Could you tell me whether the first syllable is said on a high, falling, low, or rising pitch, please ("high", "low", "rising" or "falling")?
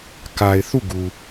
low